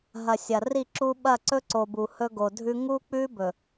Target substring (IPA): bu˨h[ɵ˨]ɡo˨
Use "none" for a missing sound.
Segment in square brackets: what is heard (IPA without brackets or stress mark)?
ɵ˦